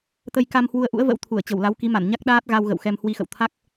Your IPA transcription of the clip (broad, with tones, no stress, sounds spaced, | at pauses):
t̪ ə˧ j k a˧ m h w u˨˦ ə̯ ʔ ṵ˧˥ ə̯ v ə̰˧˥ w t̪ʰ u˧˩ ə̯ t͡ɕ ə˧˩ w l a˨˦ w k i˨˦ m a˧˩ n ɲ a˦˥ k̚ ɗ aː˦˥ t̚ ɣ a˧ w ɣ ə̰˧˨ w x ɛ˧ m h w i˧ x ə̰˧˨ w t̪ʰ a˦˥ k̚